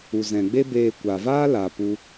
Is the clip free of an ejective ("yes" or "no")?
yes